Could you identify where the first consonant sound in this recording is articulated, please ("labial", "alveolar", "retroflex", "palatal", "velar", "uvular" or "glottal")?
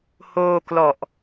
glottal